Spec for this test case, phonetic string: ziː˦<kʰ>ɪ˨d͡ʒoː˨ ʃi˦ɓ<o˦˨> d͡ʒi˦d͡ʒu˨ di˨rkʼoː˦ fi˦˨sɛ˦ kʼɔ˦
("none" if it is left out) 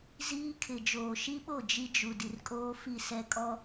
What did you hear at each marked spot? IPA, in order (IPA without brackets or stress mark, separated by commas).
kʰ, o˦˨